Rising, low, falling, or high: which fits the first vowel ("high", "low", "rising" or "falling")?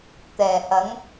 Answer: low